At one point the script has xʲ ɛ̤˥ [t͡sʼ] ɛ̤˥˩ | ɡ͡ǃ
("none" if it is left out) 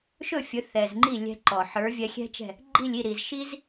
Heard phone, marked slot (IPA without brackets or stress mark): t͡ʃ